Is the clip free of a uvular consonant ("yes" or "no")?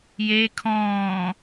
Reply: yes